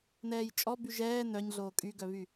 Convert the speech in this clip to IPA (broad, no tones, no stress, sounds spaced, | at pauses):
n ɛː j t͡ʃʼ ɔ b y ʒ ɛː n œ ɲ ɮ oː kʼ y ɡ œ β y